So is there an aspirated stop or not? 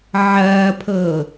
yes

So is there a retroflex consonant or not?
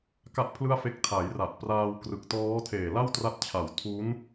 no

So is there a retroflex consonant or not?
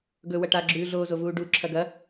yes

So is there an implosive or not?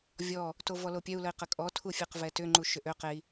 no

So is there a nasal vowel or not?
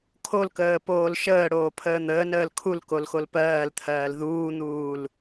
no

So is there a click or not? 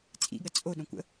no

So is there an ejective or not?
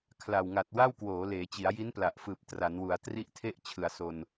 no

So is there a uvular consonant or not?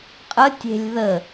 yes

